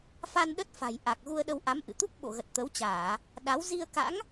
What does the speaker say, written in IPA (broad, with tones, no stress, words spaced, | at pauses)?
fa˧nɗə˦˥t̚fa̤˨˩jʔa˨˩k̚ ɣu˧ə̯ɗə˧wʔa˨˦m ʔɨ̰˧˨ t̪u˦˥k̚ɓo̰˧˨ɣə˨˩t̚ t̪ə˨˦wt͡ɕaː˧˩˨ | ɗa˨˦w zi˧ə̯ ka̰˧˥ŋ